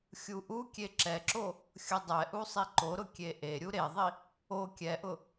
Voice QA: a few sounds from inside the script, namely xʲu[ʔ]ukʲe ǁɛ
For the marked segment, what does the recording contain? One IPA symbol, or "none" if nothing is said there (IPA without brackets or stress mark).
ʔ